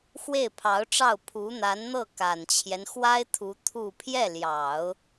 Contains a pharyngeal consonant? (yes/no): no